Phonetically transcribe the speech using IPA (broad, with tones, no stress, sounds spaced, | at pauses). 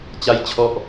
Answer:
t͡ɕ a˥˩ j t͡ɕʰ ɔ˥˩ ʔ